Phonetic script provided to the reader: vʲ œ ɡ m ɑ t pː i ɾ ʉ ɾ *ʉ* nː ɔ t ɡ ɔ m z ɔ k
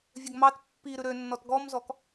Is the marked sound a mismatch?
yes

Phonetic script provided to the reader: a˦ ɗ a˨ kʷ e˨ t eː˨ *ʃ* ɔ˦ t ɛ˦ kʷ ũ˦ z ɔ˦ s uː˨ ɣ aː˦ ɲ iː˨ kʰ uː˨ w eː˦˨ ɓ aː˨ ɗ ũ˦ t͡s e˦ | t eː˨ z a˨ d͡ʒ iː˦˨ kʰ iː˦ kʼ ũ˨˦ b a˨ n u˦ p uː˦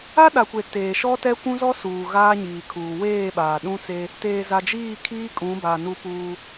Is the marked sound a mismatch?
no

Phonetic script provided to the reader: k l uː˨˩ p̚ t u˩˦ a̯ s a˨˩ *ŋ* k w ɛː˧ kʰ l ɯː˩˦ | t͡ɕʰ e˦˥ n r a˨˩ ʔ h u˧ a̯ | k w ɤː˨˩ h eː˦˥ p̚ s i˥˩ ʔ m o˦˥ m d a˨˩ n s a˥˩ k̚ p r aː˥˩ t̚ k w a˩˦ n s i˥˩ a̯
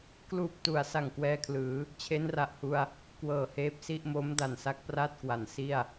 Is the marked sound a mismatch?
no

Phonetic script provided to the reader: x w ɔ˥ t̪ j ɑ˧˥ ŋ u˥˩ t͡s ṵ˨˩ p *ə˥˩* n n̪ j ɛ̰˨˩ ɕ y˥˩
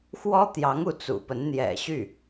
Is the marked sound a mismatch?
yes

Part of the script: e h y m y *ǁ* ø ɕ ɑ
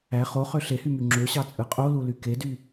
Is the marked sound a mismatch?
yes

